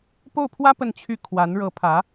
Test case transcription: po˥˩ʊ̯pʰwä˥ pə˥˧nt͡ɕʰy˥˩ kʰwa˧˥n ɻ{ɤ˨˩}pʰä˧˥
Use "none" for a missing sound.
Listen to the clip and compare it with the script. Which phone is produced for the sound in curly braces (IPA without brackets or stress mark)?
ɤ˧˥